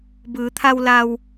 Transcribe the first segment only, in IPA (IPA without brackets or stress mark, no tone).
b